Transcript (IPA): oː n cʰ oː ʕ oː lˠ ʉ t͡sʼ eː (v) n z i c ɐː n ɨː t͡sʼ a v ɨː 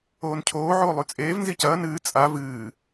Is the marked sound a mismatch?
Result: no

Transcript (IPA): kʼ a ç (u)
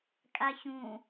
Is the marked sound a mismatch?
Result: yes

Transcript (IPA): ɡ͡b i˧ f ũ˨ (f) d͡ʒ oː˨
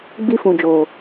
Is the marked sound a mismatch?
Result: yes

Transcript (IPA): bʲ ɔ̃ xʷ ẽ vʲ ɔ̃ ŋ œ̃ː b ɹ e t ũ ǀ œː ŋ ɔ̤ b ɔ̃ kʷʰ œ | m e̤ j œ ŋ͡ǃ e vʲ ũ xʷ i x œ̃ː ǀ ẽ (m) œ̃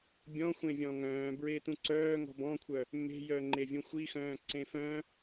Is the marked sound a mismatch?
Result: yes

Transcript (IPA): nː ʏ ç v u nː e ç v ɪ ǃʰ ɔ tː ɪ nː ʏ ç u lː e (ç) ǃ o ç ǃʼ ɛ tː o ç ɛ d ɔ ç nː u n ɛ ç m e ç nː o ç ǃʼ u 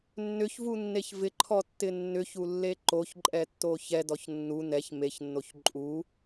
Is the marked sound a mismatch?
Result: yes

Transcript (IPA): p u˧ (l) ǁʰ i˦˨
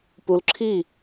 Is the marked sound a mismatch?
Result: no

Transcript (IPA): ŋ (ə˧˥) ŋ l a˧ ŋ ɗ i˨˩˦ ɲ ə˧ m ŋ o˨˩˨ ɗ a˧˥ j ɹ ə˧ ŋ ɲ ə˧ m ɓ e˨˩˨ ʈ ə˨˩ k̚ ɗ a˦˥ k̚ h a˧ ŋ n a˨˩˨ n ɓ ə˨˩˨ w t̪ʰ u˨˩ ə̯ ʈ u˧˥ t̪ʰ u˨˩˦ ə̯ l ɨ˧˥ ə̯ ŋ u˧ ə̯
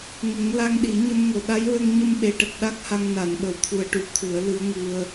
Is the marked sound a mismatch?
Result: yes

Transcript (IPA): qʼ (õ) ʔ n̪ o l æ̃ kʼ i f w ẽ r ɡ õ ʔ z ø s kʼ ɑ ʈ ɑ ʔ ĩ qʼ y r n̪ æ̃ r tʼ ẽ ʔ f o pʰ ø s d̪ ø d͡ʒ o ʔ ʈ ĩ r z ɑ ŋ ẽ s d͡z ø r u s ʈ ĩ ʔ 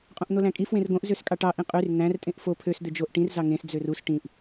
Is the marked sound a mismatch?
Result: no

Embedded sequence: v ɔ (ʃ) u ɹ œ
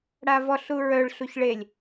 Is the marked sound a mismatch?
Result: yes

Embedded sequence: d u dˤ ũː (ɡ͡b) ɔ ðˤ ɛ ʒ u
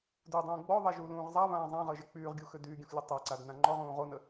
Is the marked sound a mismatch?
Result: no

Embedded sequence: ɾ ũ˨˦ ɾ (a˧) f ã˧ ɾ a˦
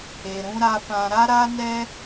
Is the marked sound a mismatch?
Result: no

